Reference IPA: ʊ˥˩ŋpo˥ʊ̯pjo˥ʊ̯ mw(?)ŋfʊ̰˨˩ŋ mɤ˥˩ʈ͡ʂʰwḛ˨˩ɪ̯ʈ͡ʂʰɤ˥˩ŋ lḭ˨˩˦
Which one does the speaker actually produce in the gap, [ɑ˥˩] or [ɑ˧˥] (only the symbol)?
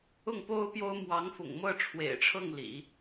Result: ɑ˧˥